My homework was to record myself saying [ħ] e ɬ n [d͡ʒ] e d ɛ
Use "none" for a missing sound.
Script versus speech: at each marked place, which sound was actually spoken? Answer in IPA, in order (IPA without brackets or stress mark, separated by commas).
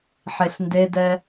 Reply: ħ, d